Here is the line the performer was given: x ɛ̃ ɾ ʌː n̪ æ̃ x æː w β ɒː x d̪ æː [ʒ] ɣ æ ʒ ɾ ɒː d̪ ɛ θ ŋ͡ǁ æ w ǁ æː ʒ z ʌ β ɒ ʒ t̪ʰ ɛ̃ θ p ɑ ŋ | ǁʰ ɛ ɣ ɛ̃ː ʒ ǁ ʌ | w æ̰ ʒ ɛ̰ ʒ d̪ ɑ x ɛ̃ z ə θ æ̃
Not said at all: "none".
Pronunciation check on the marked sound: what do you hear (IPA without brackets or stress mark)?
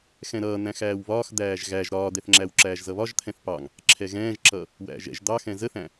ʒ